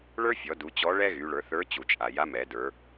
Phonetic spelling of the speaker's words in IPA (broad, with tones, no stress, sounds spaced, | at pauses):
ɭ ə˞˥ fʲ ɔ˩˧ d u˩˧ t͡ɕ ɔ˧˥ ɭ ɛ˥ ɣ y˩˧ ɭ ə˞˩˧ θ ə˞˧˥ t͡ɕ u˩ t͡ʃʼ a˩ j a˧˥ m ɛ˩˧ d ə˞˩˧